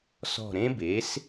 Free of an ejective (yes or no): yes